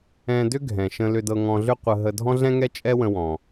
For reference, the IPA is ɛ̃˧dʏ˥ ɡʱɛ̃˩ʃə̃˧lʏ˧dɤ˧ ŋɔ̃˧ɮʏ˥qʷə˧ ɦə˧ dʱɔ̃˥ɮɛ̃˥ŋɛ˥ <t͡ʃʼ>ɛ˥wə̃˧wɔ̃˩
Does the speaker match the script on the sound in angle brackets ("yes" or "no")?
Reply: yes